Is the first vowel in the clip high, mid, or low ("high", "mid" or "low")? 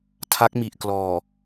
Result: low